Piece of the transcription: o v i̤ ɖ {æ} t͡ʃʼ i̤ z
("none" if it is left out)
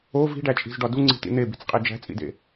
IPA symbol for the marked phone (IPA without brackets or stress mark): æ